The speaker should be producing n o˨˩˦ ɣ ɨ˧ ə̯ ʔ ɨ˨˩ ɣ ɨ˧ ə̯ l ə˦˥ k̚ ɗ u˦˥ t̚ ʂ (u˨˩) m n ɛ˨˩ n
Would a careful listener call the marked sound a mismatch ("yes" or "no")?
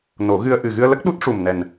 no